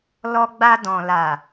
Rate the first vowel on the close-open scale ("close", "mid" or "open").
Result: mid